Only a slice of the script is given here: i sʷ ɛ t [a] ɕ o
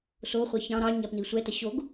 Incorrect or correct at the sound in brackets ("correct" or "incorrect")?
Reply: incorrect